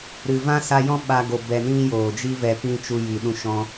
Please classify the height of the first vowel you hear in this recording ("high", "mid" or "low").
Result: high